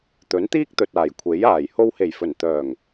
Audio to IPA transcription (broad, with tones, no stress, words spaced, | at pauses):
t̪ɵ˨˥nt̪iː˥k̚t̪ɵ˨t̚aː˨˩j kʷʰe˨˥jaː˨˩j ho˧whe˨˩jfɵ˨˩n t̪œː˨˩ŋ